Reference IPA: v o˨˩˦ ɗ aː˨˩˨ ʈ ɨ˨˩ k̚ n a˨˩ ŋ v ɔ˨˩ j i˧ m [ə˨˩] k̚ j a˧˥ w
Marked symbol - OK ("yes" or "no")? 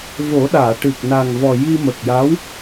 yes